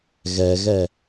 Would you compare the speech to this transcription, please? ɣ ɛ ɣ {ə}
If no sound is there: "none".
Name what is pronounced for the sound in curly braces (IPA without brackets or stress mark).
ɛ